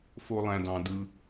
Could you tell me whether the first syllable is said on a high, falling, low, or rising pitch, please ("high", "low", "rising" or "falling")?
high